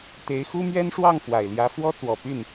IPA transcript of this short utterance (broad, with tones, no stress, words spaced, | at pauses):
t̪e˧˥ɪ̯xu˥mɥɛ˥nʂwɑ˥˩ŋ fwa˨˩ɪ̯ljä˧˥fwɔ˥t͡swɔ˨˩ py˥˩n